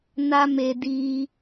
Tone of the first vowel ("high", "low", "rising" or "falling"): high